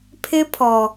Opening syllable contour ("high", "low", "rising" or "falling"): high